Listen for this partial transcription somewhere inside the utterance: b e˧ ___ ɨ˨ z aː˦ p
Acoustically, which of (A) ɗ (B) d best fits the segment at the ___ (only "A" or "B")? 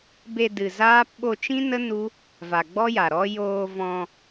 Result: B